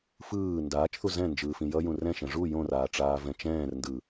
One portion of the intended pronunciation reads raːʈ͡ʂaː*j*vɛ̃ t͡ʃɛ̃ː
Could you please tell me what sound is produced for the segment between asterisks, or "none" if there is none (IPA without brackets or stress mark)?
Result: none